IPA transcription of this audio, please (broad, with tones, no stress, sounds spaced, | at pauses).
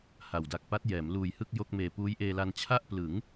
h a˨˩ w d a˨˩ k̚ p a˦˥ t̚ j ɛː˩˦ m l uː˨˩ j h ɯ˥˩ k̚ j o˥˩ k̚ m eː˨˩ p uː˦˥ j ʔ eː˧ l a˧ n t͡ɕʰ a˥˩ ʔ p l ɯ˩˦ ŋ